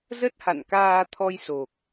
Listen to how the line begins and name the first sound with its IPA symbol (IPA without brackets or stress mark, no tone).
z